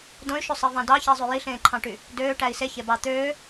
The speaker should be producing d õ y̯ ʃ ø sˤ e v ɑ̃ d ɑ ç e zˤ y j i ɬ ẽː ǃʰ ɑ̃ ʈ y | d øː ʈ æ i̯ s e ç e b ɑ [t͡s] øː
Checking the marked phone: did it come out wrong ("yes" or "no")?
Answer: yes